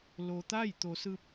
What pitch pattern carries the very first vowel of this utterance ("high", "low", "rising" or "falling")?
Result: low